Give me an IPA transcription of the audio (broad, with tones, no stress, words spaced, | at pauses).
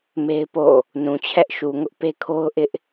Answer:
me˦ɪ̯po̰˦˨ | nũ˨t͡ɕʰɛ˦ʔ ʃu˨ŋʊ˦ʔ pe˦kʰo˦ʊ̯ʔɪ˦ʔ